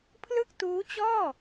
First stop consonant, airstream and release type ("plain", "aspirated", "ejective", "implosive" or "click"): aspirated